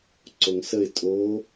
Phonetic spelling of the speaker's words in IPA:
ǀ o ŋ s ə ɪ̯ tʼ o

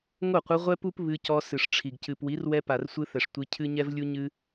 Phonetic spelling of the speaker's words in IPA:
ŋ o˦˨ qʷ ɨ˧ ʁʷ ɛ˦ p u˦ p β ɨ˧ c ɔ˧ s ɨ˨ ʂ ʈ͡ʂʰ i˨ ɡ c ɨ˨ p w i˨˦ r w ɛ˧ p a˨ r sʷ ɨ˧ θ ɛ˨ ʂ tʷ i˧ cʰ ɨ˦ ɲ ɛ˦ v lʲ u˦ ɲ ɨ˦

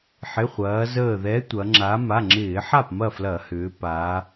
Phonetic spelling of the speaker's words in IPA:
ħ ɪ˩˧˩ χʷ ɐː˩˧ z əː˧˩ ð ɛ˨˥ tʷ ɐ˩˧ ŋ͡ǁ a˨˥ m a˩˧˩ ŋ͡ǁ ɪː˧˩˧ ħ a˥˩ p m ɐ˥˩ f l ɐ˧˩˧ h ʏː˩˧ p a˩˧

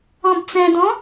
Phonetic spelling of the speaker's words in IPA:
ɔ̃ b t͡s ɛ̃ d ɔ̃

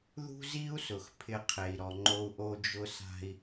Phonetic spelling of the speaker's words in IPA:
ð ṳ˥ z i˥ u̯ s ʊ˩ x pʰ ɪ˧˥ qʰ e˩ i̯ ɾ ɔ˩ ŋ͡ǃ o˧ u̯ ʔ o˧ d͡ʒ ʊ˧ s a̤˧ i̯

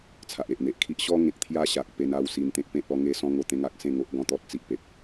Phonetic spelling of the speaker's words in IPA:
t͡sʰ a˨ ʔ e˨ ʔ n̪ e˨ ʔ kʰ i˦ ʔ ɕ ɔ˦ ŋ ẽ˨ k̚ t̪ʰ j a˦ ɕ a˨ k̚ p e˧ n a˧ w s i˧ n t̪ ẽ˦ k̚ p ẽ˦ t̚ ɔ˦ ŋ e˧ s ɔ̃˧ ŋ o˧ t̪ ẽ˦ ŋ a˦ k̚ s ẽ˥˧ ŋ o˦ ʔ ɡ ɔ̃˦ t̪ ɔ˦ t̚ t͡s i˦ ʔ p e˨ p̚

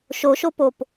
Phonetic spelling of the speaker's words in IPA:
ʃ o ʃ o p o p

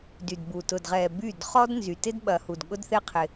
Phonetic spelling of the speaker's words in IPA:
d y˨ d b u˨ t ʊ˨ d ʁ ɛ˨ b y˦˨ d χ ɔ˦ d n z y˨ t ɪ˦ d ɓ ɐ˨ h u˨ d ɠ ʊ˦ d θ e˦ qʰ ɪ˦

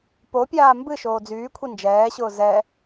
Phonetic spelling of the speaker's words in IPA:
p o pʲ aː m b ɨ ʃ oː d͡z yː kʷʰ i n d͡ʒ ɛː ɕ ʊː z ɛ

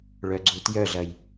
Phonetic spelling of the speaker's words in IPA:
ɭ œ ɡ͡ǀ u t j œ ɮ ɐ j

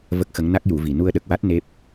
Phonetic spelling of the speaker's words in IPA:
v ə˦˥ k̚ x ə˧˥ ŋ n a˦˥ k̚ j u˨˩˦ v i˨˩ n u˧ ə̯ ɗ ə˨˩ k̚ w a˦˥ t̚ n e˦˥ p̚

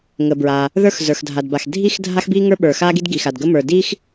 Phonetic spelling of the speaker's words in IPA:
ŋ ə˩ b ɹ a˩ | ð ə˞˥ x z ə˞˩ x dʱ a˩ d b a˩ x dʱ i˥ x dʱ a˥ x b i˥ ŋ ə˞˥ ɓ ə˞˩ x a˥ ɡ i˥ d ɡ i˩ x a˩ d ɡ ə˥ m ə˞˩ d i˥ x

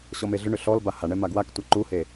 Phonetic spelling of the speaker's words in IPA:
ɕ ɔ m e ɮ ʏ ɳ ʏ ɬ ɔ l b a h a ɳ ɛ m a ɡ w a k tʷ a ǃ u h e

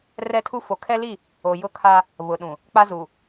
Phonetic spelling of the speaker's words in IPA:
r ɛ˦ tʰ u˦ f o˨˦ kʰ ɛ˦ l i˦˨ | o˨ j ʊ˦ kʰ a˦ | β ʊ˨ ɗ ũ˨ | k͡p a˦ z u˨

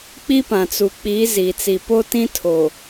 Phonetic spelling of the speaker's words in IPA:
k͡p i˦ p ã˨ t͡s u˨ k͡p i˨˦ z i˨ t͡s i˨ p o˦ t ĩ˦ tʰ o˨

